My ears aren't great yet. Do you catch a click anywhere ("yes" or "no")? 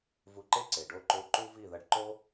yes